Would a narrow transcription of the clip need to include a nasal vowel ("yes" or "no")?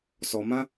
yes